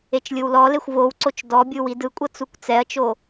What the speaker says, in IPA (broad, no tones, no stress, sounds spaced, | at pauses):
e t͡ʃ lʲ ɯ w l ɔ l e xʷ v o w ǀ o t͡ʃ d ɔ bʲ ɯ w i d ɯ kʷʼ ɤ t͡s u kʷ t͡s ɛ ɐ̯ t͡ʃ o